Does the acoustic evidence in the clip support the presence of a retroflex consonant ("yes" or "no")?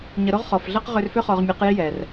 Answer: no